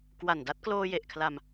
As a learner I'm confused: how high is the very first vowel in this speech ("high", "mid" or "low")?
low